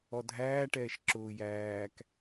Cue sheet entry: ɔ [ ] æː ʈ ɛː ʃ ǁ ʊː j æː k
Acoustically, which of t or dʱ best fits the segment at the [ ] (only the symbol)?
dʱ